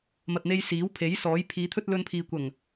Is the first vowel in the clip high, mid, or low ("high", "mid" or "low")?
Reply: low